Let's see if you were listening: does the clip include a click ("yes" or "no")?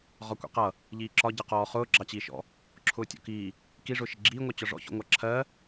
yes